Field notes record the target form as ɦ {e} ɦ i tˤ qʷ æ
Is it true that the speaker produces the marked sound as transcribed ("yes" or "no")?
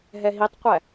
no